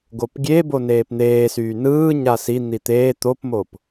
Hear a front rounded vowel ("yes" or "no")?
yes